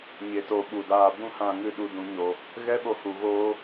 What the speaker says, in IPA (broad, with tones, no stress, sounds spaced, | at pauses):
ɲ e˨ t o˨ ɓ u˨ d aː˧ b ũ˦ h ã˧ ŋ ɨ˧ ɗ u˨ d ũ˨ ɲ o˨ | ɣ ɛ˦ ɓ o˧ h u˨ ɣ oː˧